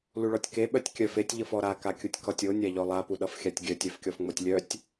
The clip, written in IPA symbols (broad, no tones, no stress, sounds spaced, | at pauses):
l u ɭ ɔ tʲ k e ɓ œ tʲ kʲ œ f e tʲ ʎ ʌ f ɔ ɾ a k a kʲ u tʲ k ɔ tʲ o nʲ a ʎ ɔ lˠ a p u ɗ ʌ f xʲ a tʲ ɡʲ œ tʲ œ f kʲ ɔ f ŋ͡m o tʲ lʲ œ tʲ